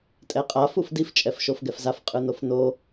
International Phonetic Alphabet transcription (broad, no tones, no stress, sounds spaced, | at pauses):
tʼ ɛ qʼ a f u f d i f t͡ʃʼ ɛ f ʃ o f ɡ ɛ f z a f qʼ ɯ n o f n o